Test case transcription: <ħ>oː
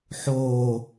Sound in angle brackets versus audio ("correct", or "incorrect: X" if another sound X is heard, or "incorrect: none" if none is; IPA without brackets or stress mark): correct